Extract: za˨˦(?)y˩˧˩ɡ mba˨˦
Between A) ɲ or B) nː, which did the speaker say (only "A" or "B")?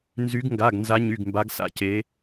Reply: A